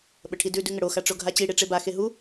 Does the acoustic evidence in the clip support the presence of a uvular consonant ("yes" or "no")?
no